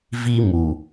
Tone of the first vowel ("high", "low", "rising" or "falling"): high